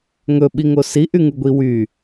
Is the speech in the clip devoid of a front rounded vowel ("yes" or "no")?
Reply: no